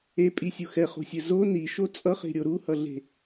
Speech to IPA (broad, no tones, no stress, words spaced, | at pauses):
epʼisʲu xɛχo̤sʲɘ zo niʃo t͡sʼʌχe̤ɾʲo ɾuhʌɮe̤